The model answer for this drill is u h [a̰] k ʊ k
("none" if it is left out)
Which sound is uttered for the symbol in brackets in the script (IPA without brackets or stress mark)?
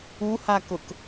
a